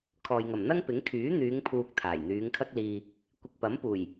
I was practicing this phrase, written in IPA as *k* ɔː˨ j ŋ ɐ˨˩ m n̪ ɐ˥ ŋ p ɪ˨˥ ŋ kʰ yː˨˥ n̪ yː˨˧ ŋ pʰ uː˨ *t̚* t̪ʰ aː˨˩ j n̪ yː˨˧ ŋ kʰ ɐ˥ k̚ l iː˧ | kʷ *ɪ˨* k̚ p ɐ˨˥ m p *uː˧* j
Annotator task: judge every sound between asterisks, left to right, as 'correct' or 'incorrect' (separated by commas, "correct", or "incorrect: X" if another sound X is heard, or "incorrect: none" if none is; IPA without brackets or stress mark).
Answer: incorrect: kʰ, incorrect: k̚, correct, incorrect: uː˨˩